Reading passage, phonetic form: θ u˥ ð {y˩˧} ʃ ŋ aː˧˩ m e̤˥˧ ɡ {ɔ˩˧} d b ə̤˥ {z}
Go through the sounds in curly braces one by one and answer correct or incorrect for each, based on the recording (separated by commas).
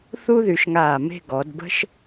correct, correct, incorrect